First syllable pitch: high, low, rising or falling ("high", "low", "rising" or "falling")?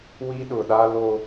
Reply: high